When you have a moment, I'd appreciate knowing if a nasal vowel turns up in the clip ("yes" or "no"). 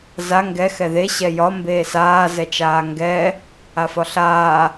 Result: no